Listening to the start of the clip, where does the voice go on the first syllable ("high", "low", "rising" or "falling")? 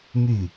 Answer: falling